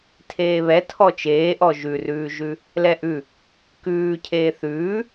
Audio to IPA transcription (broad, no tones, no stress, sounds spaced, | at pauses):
tʰ eː β ɛ tʰ ɔ t͡ʃ eː ʔ ɔ ʒ ʉ r ʉː ʒ ʉ | l ɛ ʔ ʉ | k ʉː cʰ eː θ ʉː